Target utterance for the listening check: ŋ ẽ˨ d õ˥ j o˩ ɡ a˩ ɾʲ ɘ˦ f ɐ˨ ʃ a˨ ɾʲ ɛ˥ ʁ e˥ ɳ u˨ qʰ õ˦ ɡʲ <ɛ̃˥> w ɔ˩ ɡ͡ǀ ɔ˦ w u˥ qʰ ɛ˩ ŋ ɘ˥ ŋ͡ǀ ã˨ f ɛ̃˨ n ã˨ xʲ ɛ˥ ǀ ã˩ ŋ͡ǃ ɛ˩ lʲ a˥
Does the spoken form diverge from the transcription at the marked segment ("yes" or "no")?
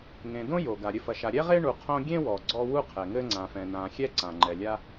yes